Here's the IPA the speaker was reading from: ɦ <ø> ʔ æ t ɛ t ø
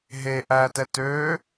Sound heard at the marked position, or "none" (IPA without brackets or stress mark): e